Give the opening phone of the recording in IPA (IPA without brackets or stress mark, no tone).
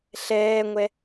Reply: ɬ